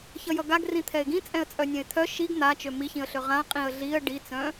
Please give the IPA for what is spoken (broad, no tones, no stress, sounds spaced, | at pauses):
ç ʌ j ʌ ɡ a ɡ r ĩ t̪ʰ ɛ ɪ̯ ɡ ĩ t͡sʼ ɛ̃ ə̯ t͡sʼ œ nʲ ɛ̃ ɪ̯ t̪ʰ œ ʃ i ɡ n̪ a t͡ʃ ø m i ç ĩ ə̯ ɬ ø ʁ ã qʼ ĩ ə̯ ɮ i ə̯ ɖ i t͡s œ̃